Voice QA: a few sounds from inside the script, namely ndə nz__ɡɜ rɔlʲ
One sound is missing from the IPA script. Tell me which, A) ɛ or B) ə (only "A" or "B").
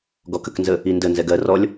A